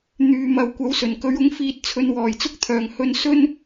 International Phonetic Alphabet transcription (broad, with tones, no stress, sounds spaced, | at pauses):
n̪ yː˨ m ɐ˨ w kʷ ɐ˨˥ w s ɵ˨˩ n k ɵ˨˥ ɥ ʊ˨˥ ŋ f iː˧ t̚ t͡sʰ ɵ˧ n w ɔː˨˩ j t͡s ʊ˥ k̚ t̪ʰ œː˨˩ ŋ h ɵ˧ n s ɵ˥ n